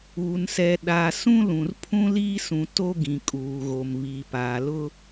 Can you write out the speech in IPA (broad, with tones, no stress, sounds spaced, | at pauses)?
uː˨ n s ɛ˨ ɗ a˨ s ũ˦ l ũ˨ r pʰ ũ˦ l iː˦ s ũ˨ t o˦ ɡ ĩ˨ kʼ uː˨ ɣ o˨ m β iː˨ p aː˨ l ʊ˦